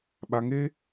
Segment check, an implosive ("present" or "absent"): present